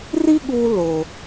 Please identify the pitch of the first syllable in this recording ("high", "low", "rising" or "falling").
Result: high